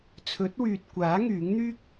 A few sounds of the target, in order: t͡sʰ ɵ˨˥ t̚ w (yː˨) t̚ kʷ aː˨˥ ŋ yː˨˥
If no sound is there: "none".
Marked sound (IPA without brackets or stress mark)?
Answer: yː˨